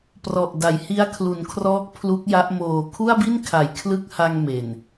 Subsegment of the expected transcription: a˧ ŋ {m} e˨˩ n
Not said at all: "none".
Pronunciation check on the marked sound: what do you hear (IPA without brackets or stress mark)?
m